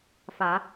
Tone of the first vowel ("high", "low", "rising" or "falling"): low